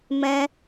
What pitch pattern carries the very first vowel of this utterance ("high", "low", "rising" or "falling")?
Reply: high